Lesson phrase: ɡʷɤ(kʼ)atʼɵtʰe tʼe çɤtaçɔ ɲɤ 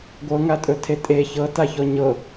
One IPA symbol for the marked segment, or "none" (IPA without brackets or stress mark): ŋ